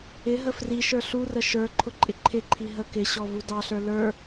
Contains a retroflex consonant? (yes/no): no